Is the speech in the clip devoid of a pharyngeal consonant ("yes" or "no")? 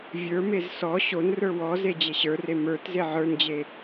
no